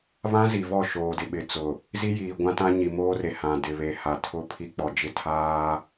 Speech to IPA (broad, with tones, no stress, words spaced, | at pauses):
βã˦zi˨vɔ˦˨ ʃoː˨dɪ˨ɓɪ˨t͡sʊ˨ | zi˦jiː˨ ɡʷã˦tã˦ ɲi˨ moː˦re˨hã˨ dɪ˨βe˨ ha˨ tʰʊ˦pʰi˦k͡pɔ˨d͡ʒɪ˦ tʰaː˦